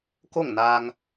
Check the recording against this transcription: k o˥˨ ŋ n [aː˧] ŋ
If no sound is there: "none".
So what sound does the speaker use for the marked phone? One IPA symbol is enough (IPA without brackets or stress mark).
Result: aː˧